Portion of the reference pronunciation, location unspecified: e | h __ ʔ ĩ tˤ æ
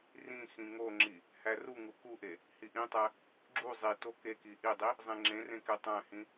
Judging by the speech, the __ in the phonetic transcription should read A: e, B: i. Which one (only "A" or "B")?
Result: B